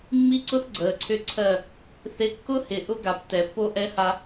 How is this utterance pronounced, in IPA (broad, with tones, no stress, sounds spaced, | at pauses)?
mː i˦ ǀ ʊ˦ θ ɡ͡ǀ əː˨ ǀʰ ʏ˦ ǀʰ ɜ˦˨ | θ ɪ˦ kː ʊ˦ h ɪ˨ ʔ ʊ˦ ɡ a˨ p t ɛ˨ pː o˦ ʔ ɛ˦ h a˦